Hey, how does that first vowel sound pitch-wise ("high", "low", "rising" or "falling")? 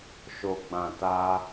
low